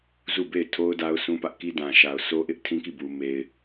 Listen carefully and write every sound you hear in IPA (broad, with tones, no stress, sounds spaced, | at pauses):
z u˦˨ b e˦˨ ɪ̯ tʰ o˦ ʊ̯ d a˦ ʊ̯ s ũ˦ p ä˦ ʔ k i˦ d ã˨ ʃ a˨ ʊ̯ sʰ o˦ ʔ ɪ˦ ʔ tʰ ĩ˦ k i˦˨ b u˨ m e˨ ɪ̯